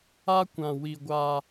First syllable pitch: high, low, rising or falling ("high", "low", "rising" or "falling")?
high